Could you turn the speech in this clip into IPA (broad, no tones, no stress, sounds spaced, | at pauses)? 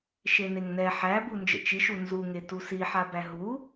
ʃ e n e ŋ n ɛ ħ æ b u n d͡ʒ ə̰ t͡ʃ i ʃ u n z u ŋ e t u s i ħ a b æ ɦ u